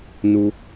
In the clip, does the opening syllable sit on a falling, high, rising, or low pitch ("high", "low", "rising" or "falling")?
low